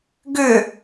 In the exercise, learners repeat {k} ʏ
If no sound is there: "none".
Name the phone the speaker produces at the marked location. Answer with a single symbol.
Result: ɡ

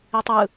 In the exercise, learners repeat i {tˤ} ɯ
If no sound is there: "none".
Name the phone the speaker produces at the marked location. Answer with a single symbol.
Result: tˤ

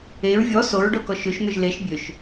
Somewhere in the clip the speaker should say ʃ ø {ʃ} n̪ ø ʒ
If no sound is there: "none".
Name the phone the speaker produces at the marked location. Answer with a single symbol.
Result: ʃ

